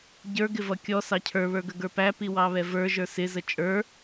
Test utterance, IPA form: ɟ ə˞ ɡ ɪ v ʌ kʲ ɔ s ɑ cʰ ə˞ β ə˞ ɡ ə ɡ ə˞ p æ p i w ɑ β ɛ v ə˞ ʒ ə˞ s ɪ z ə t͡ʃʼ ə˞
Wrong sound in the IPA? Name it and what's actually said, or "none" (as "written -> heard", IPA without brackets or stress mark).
none